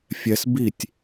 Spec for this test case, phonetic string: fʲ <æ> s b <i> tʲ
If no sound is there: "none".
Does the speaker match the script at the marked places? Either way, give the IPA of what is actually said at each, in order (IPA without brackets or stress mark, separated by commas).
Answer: ɛ, i